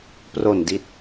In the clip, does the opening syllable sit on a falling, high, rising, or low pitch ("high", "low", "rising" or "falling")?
low